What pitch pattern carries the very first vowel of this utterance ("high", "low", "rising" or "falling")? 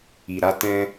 low